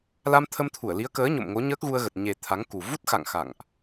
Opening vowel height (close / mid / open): open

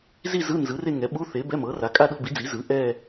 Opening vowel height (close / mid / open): close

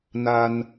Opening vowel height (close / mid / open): open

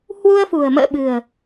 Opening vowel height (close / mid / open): close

